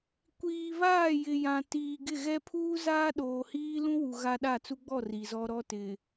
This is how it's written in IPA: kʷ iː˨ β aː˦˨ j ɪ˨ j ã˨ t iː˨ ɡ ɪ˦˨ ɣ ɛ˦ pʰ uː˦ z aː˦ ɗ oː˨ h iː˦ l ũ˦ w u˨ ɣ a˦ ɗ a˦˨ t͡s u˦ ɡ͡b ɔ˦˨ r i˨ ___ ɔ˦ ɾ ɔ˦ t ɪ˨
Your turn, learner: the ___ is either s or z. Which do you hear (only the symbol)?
z